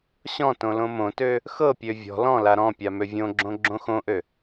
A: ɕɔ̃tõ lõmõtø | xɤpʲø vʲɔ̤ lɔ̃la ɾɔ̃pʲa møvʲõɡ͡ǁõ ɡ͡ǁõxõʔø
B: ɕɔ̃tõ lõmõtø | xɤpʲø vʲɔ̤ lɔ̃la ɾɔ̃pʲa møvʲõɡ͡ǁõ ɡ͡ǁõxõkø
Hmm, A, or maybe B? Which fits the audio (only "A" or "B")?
A